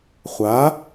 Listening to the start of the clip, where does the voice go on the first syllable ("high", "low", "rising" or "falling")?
rising